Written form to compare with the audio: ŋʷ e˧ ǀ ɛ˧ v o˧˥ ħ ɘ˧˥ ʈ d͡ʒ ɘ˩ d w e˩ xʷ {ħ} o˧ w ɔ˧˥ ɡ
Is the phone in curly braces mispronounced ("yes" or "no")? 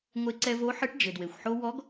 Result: no